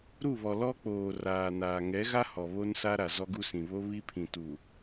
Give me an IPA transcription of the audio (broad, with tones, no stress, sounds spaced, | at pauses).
ɾ u˦˨ β ɔ˨ l ɔ˦ k͡p oː˨ r aː˨ n aː˨ ŋ ɛ˨˦ ɣ a˦ h ɔ˨ β o˦ n s a˦ ɾ a˨ z ɔ˦ ɡ u˦ s ĩ˨ β o˦ β i˦ pʰ ĩ˨ t u˨